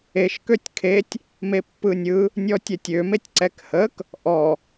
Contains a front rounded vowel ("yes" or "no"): yes